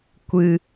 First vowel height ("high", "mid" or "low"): high